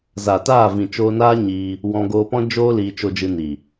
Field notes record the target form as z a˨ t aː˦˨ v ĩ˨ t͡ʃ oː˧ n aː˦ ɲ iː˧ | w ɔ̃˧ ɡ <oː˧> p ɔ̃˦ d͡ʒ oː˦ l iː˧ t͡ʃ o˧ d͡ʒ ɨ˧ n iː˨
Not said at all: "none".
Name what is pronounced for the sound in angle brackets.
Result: oː˧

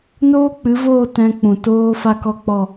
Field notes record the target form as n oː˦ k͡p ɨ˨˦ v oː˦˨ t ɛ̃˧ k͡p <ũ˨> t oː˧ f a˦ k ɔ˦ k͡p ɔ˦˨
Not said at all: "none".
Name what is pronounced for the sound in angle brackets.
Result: ũ˨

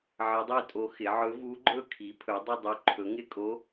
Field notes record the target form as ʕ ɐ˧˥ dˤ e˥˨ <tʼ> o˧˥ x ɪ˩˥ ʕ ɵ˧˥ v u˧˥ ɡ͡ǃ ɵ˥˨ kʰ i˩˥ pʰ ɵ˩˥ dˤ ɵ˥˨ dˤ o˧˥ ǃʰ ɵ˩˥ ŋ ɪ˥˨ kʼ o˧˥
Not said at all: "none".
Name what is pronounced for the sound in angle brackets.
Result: tʼ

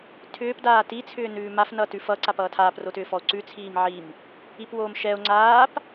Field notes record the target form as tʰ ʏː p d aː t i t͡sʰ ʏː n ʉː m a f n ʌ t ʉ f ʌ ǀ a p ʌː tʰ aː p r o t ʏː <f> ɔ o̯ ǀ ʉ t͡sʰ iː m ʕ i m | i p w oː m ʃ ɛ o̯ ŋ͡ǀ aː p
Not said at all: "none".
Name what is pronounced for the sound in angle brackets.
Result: f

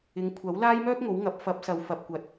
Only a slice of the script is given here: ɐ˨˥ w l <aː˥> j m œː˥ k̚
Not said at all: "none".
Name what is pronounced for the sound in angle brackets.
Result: aː˥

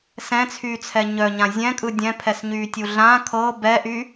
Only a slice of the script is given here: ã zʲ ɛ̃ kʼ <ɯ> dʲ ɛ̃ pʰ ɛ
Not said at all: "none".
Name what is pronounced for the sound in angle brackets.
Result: ɯ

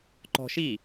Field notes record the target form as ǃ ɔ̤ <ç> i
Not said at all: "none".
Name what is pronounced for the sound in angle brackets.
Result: ʃ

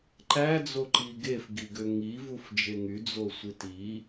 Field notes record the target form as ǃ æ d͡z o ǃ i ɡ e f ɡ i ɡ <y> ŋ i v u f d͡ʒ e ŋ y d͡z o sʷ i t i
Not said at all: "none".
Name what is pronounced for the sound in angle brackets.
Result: ø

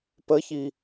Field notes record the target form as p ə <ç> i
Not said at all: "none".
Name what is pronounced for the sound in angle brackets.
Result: ç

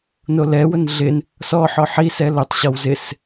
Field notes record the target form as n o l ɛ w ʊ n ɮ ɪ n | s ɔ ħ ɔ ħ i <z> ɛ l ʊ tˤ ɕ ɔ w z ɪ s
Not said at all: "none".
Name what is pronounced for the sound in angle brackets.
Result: s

